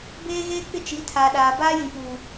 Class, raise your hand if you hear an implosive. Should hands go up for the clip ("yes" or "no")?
yes